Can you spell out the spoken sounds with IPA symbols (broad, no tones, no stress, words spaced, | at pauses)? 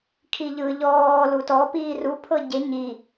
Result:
kʰiʎɯ ʎɔː lutɔ piːru pʰɤɟe ɲi